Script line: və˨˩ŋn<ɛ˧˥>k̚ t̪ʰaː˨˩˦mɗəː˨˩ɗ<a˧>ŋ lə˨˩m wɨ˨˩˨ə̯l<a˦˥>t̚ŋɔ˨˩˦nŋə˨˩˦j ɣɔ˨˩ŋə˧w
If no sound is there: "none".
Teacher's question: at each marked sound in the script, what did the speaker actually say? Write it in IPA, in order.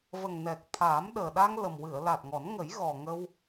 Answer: ɛ˨˩, a˧, a˨˩

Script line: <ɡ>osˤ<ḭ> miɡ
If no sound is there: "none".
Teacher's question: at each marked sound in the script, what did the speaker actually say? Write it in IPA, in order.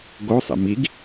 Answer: ɡ, ḭ

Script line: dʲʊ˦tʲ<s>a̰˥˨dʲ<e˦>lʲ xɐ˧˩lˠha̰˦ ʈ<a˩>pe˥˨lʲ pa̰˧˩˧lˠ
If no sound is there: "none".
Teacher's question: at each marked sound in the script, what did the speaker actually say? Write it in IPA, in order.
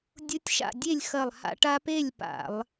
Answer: ʃ, e˥˨, a˦

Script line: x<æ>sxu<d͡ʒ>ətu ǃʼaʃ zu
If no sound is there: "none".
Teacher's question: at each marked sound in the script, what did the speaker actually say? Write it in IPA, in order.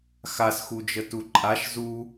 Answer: a, d͡ʒ

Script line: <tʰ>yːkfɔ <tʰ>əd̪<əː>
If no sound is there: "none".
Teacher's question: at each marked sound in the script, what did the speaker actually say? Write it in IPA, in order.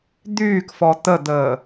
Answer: d̪, t̪, əː

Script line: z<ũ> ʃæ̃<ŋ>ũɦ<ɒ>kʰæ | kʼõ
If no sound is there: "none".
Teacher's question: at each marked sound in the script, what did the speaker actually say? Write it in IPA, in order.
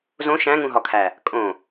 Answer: õ, ŋ, ɒ

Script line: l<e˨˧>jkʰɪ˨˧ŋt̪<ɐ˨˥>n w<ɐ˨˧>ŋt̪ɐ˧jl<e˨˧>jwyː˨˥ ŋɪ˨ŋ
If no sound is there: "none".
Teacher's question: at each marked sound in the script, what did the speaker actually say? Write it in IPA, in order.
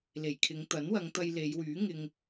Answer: e˨˩, ɐ˨˥, ɐ˨˧, e˨˧

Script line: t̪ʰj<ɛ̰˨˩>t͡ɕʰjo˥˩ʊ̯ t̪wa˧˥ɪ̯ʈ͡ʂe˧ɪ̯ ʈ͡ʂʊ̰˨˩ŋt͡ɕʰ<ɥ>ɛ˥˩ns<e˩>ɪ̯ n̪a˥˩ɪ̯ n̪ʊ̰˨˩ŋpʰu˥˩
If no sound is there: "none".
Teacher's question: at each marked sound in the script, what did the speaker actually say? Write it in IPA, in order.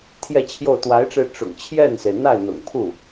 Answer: ɛ˥˧, j, e˩

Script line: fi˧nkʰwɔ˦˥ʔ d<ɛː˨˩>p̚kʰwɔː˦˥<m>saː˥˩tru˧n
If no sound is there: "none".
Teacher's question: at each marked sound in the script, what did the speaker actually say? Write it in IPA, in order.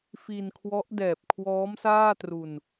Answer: ɛː˨˩, m

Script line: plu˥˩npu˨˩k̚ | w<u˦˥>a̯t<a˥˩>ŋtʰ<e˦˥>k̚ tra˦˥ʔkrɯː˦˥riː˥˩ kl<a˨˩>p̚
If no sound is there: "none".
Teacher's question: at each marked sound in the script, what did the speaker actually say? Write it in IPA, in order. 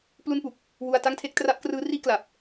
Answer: u˧, a˥˩, e˥˩, a˨˩

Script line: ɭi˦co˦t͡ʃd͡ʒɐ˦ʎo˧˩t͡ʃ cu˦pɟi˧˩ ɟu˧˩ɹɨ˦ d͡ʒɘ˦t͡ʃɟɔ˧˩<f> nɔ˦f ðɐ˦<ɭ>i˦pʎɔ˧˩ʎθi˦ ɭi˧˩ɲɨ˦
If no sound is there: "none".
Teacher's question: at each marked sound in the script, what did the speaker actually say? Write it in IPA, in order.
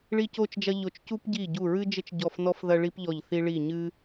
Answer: f, ɭ

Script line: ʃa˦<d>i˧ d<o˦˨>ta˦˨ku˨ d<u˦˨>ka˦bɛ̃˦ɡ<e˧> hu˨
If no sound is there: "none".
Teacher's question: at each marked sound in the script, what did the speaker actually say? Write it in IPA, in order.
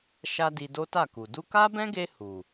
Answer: d, o˦, u˧, e˧

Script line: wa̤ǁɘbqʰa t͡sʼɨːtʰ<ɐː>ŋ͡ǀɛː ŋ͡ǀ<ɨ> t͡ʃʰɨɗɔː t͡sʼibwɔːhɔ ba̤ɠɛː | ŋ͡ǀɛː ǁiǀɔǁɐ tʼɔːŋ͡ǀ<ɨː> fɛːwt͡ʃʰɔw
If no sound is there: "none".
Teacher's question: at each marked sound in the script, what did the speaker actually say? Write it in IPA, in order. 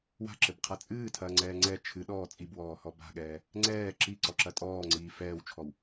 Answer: ɐː, ɛ, iː

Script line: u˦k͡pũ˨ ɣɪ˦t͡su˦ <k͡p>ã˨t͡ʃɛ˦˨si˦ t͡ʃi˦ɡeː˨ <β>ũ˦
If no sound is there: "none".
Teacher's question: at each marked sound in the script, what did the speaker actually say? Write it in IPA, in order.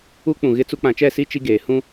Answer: k͡p, h

